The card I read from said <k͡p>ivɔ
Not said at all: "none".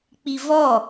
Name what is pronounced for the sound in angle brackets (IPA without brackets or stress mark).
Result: k͡p